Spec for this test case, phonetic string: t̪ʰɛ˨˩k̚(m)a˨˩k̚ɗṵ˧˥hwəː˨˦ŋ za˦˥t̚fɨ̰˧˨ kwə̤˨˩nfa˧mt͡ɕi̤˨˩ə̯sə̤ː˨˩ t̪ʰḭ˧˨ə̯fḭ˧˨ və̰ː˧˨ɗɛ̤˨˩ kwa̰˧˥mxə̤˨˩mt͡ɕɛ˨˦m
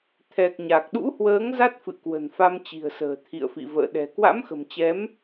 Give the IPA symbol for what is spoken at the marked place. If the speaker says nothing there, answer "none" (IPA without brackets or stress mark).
ɲ